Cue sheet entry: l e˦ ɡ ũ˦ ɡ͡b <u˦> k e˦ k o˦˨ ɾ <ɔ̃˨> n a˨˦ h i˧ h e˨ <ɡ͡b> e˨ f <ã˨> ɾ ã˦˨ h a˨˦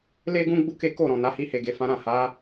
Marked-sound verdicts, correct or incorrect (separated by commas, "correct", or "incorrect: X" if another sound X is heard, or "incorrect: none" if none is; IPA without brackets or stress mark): correct, correct, incorrect: ɡ, incorrect: ã˨˦